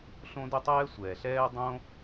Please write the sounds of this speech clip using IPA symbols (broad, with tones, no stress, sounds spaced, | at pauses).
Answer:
ɬ õ˥ d ə˥ tˤ ɛː˥ sʷ ɛː˩ ɬ ɛː˥ dˤ õ˥